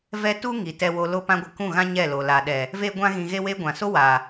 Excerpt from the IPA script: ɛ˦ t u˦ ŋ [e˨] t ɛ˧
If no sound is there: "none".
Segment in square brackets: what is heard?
i˨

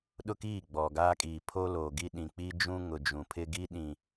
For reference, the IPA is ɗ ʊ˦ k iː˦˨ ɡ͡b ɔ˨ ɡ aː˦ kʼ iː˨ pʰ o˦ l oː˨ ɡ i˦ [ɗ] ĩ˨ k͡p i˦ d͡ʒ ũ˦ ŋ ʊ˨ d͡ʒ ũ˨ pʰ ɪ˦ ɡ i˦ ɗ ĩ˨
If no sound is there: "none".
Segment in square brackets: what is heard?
ɗ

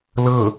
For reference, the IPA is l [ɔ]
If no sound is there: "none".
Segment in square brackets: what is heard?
ɤ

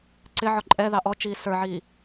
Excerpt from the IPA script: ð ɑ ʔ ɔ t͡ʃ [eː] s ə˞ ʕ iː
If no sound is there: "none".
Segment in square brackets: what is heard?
iː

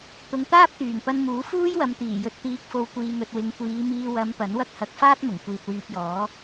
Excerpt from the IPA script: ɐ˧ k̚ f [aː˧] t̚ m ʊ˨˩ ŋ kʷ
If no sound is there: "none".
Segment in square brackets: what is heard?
aː˥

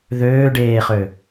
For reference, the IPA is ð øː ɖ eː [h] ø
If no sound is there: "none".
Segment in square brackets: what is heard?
χ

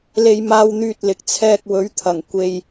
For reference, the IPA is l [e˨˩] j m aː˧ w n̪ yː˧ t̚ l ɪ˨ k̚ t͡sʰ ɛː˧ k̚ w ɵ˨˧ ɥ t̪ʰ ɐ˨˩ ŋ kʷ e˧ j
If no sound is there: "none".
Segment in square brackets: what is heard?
e˧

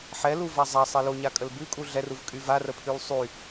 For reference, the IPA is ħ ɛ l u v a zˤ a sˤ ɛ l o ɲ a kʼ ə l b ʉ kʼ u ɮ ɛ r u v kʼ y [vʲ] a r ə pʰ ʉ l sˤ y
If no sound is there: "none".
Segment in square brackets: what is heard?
v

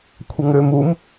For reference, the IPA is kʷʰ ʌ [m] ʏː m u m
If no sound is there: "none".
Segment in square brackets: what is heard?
ŋ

